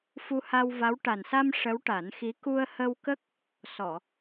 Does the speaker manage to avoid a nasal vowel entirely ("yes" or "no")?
yes